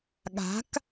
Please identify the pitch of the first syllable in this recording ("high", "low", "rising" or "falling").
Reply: rising